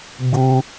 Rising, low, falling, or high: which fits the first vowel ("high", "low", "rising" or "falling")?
high